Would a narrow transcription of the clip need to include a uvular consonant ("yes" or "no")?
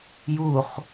yes